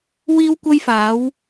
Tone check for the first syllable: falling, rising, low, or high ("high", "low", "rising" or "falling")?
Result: high